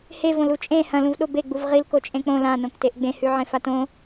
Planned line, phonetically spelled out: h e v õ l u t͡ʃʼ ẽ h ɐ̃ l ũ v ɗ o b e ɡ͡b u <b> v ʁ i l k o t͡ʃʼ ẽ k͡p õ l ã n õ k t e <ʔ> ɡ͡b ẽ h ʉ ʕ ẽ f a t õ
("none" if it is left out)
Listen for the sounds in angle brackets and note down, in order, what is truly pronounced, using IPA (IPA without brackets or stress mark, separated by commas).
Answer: none, ʔ